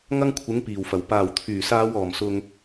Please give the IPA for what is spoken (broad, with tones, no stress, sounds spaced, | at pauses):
ŋ ɐ˥ ŋ kʷʰ ɪ˨˥ ŋ p iː˨˩ w f ɐ˨˩ w p aː˨˩ w t̪ʰ yː˨˩ s aː˨˧ w ɔː˨˩ m s ʊ˨ ŋ